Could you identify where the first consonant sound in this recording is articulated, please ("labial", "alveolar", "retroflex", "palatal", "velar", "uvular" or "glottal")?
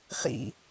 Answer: uvular